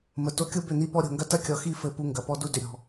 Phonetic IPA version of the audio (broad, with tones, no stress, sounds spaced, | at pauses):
m ə˨ t o˨ kʲ o˦ b ʏ˦˨ n̪ i˦ p ɔ˦ ɾʲ o̤˨ ŋ ɡ ɐ˦ t ɐ˦ kʲ ɔ˨ x i˦˨ f ɘ˦˨ p u˦ ŋ ɡ ɐ˨ p ɔ˦ d u˦ d ʏ˨ ɾʲ ɔ̤˨